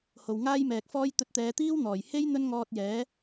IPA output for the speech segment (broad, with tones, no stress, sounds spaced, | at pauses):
h o˨ w ŋ aː˥ j m ɛː˨ k̚ f ɔː˥ j t̪ ɵ˧ t̚ t̪ ɛː˨˧ t̪ iː˥ w n̪ ɔː˨˩ j h e˥ j n̪ ɵ˥ n ŋ ɔː˧ t̚ j ɛː˨˥